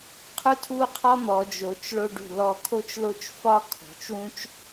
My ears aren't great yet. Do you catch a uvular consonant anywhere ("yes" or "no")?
yes